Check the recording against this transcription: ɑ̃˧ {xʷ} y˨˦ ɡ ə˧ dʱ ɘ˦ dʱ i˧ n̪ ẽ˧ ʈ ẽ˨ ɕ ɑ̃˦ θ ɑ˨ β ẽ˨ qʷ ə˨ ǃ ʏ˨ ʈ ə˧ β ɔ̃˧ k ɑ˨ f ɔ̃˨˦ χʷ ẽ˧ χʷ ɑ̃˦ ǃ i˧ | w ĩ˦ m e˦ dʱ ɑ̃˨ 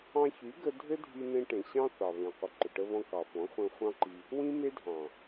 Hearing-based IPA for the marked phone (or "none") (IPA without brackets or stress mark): ç